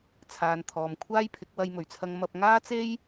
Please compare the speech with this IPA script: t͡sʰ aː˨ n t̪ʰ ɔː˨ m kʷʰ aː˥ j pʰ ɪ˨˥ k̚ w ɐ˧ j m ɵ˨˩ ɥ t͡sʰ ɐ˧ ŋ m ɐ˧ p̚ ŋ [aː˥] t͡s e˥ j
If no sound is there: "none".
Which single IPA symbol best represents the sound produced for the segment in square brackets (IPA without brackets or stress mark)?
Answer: aː˥